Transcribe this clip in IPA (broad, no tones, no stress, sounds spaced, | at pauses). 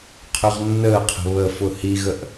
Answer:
qʰ ɵ ʁ nː əː qʰ ə̤ β ə f ʊ h i ɣ ə ʔ